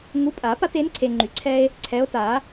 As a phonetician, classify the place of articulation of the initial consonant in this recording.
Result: velar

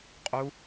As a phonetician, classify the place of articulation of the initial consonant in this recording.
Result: uvular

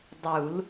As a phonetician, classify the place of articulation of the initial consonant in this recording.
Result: alveolar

